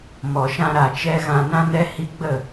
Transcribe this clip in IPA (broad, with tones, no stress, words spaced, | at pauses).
mɔ˨ʃã˧ɾa˨t͡ʃɛ˧ ɣã˨nã˧nɛ˧ hi˧ɡ͡bə˦˨